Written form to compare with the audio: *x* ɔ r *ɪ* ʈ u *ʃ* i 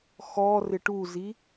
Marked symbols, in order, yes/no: yes, yes, no

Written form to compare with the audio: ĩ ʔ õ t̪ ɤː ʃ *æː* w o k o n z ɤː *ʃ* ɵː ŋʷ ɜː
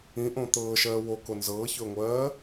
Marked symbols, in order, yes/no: no, no

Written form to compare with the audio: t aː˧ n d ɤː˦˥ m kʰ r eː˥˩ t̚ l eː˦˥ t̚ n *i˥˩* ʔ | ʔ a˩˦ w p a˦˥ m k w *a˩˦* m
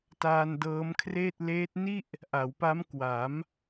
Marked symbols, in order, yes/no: yes, yes

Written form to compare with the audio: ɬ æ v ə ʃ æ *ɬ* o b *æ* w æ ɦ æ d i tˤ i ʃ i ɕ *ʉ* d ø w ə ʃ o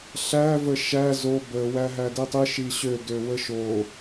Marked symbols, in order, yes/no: no, no, no

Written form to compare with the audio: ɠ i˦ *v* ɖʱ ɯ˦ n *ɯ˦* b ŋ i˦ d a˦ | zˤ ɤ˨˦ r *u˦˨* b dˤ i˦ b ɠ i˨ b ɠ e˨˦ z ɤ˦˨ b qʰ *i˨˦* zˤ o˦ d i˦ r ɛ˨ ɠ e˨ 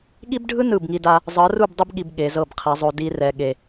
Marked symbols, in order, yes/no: no, no, yes, yes

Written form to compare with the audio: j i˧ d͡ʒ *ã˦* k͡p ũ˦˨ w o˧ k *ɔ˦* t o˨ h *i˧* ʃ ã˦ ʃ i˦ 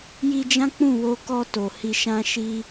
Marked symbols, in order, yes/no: yes, no, yes

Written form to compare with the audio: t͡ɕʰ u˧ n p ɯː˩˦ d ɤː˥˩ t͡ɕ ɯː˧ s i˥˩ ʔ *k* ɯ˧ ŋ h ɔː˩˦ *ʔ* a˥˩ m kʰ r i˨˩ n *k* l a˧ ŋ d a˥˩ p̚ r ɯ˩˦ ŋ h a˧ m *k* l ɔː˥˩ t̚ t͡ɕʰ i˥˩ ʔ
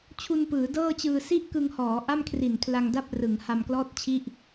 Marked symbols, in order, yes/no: yes, yes, no, yes

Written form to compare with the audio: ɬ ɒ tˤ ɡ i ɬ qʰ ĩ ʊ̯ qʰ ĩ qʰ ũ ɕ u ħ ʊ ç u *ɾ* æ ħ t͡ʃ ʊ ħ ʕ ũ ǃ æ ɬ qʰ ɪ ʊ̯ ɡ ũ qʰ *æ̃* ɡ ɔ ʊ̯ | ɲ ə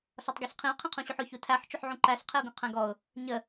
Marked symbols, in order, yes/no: no, yes

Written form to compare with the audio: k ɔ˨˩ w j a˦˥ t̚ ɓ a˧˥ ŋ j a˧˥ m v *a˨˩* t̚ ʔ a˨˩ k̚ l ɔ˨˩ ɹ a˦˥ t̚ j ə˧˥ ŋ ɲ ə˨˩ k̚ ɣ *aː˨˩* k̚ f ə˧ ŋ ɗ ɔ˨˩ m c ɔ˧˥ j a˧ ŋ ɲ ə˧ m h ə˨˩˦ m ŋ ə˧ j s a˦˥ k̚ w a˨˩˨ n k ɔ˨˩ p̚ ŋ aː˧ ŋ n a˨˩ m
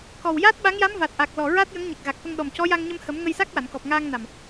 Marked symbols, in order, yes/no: yes, no

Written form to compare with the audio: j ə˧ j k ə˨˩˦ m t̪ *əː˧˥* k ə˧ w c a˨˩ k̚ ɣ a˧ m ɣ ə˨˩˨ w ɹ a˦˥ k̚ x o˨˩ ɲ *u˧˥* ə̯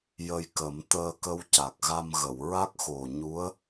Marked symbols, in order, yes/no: no, yes

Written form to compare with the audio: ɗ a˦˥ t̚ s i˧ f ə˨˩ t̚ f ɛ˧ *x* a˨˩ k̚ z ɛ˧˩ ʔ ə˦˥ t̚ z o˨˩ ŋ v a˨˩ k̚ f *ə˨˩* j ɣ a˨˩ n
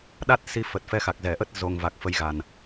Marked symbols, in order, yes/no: yes, yes

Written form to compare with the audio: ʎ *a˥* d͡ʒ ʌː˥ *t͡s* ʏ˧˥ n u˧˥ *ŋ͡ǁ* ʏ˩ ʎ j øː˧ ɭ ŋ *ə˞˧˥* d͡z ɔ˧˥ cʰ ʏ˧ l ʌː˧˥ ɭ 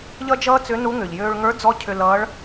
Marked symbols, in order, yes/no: no, yes, no, yes

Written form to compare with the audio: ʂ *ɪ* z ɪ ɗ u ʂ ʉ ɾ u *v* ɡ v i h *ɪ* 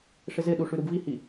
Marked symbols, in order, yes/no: yes, no, no

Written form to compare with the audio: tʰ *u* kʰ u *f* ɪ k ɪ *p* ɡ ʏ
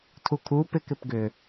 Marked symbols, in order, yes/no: yes, no, yes

